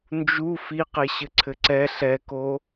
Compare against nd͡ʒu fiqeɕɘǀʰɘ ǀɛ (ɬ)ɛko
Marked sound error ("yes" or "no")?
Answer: no